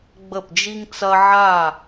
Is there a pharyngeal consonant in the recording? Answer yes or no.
yes